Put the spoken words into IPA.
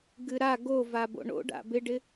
ɡ ɨ ɾ a ɡ o v a b o̰ ɳ o̰ ɖ a̰ b ɪ ɖ ɪ

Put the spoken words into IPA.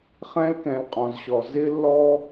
χ ɛ̃˧ l k ɛ̃˩ l qʼ ɔ̃˩ z ɕ ɔ˩ z ɪ˧ lː ɔ˧

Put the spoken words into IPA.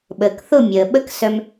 ɓ əː˨ k θ ʊ˦˨ mʲ əː˨ ɓ ə˦ k s œ˧ m

